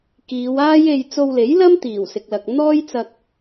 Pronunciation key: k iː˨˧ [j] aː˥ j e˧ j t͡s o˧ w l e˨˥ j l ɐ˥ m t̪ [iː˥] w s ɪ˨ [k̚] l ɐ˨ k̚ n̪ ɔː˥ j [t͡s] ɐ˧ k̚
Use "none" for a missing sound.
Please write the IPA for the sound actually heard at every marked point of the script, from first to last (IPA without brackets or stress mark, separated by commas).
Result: w, iː˨˩, k̚, t͡s